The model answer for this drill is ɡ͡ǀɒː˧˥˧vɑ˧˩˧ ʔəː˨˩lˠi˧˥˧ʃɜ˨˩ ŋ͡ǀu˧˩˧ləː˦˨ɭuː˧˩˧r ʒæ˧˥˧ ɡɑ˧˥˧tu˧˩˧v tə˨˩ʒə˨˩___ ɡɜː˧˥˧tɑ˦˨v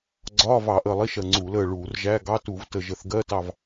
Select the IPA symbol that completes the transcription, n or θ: θ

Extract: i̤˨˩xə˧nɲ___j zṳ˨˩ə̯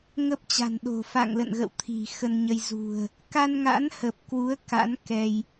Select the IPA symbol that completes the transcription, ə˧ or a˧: ə˧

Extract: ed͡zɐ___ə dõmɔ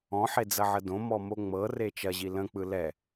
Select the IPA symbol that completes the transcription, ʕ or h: ʕ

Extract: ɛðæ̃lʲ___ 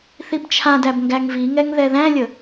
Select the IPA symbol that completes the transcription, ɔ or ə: ə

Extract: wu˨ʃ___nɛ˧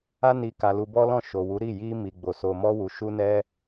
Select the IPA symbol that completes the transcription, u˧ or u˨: u˧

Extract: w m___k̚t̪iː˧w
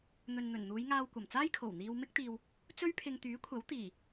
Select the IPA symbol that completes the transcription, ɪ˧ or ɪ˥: ɪ˥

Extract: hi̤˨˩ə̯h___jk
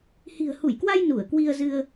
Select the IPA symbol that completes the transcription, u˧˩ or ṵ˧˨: u˧˩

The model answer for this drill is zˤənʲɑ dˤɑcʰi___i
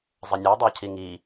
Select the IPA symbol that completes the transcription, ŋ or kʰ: ŋ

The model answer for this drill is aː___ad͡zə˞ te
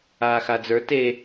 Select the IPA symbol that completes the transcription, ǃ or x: x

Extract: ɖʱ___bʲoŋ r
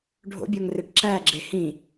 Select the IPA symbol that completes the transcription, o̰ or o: o̰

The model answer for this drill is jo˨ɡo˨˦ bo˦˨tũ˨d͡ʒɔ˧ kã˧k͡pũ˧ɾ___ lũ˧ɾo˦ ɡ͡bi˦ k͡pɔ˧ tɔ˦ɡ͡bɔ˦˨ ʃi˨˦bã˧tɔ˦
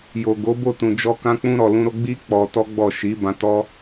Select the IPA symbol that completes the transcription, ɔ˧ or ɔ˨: ɔ˨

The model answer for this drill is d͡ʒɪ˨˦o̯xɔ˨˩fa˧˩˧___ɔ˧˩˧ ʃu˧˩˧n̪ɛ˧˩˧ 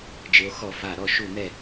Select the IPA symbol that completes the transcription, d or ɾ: ɾ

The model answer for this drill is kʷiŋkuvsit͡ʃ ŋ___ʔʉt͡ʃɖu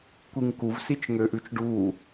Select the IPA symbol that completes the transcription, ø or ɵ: ø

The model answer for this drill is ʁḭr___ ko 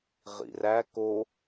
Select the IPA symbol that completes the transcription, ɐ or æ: æ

